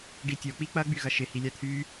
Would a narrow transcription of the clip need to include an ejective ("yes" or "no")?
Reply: no